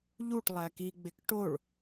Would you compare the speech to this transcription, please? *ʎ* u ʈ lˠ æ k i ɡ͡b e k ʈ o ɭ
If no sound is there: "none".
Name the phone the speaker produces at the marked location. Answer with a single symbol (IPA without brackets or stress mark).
ʎ